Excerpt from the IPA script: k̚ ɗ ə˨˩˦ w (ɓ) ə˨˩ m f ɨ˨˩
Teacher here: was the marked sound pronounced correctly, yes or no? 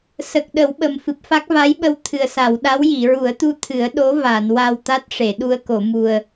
yes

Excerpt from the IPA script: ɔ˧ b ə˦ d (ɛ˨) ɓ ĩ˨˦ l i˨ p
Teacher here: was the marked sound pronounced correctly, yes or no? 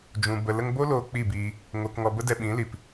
no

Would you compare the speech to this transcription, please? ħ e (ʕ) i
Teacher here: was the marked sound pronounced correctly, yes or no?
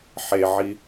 yes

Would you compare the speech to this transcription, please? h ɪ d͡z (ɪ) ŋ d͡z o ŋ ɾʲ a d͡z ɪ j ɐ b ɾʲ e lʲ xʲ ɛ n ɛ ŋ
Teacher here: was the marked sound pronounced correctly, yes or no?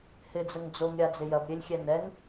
no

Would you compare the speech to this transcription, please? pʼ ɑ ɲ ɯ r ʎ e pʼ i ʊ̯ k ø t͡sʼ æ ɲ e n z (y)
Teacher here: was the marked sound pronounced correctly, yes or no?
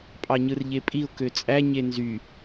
yes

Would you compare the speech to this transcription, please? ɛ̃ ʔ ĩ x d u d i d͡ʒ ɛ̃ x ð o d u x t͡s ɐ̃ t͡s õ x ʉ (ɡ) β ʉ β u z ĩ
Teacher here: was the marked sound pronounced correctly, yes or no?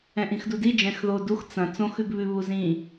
yes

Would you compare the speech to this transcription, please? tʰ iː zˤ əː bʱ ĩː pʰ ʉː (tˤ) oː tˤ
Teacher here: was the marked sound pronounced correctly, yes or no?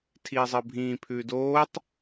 no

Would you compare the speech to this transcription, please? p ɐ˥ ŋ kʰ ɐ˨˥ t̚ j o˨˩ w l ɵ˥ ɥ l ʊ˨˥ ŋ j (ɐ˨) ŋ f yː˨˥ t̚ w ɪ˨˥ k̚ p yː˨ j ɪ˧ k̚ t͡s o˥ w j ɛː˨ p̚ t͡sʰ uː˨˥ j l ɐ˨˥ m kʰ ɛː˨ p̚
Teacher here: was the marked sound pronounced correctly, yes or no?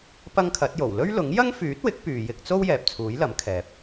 no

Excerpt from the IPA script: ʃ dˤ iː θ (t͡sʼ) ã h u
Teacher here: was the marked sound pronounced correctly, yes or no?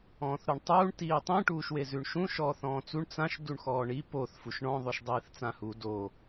no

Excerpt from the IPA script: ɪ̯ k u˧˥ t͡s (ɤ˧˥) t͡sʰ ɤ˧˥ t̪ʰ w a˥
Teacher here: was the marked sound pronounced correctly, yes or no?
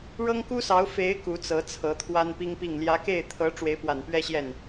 yes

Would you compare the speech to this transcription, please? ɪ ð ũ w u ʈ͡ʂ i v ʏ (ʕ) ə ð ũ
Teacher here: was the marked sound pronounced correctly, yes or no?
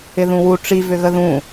no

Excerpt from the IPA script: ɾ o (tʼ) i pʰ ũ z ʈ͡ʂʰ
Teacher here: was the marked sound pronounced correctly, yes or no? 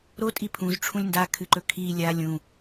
yes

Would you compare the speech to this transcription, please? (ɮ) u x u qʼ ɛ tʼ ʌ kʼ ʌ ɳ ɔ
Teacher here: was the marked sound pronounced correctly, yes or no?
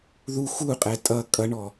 no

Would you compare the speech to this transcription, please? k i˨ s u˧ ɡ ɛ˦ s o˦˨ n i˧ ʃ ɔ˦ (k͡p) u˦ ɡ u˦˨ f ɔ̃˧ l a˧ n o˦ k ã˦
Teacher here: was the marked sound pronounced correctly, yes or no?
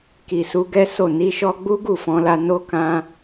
no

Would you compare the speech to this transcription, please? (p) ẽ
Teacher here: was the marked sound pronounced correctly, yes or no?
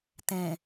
no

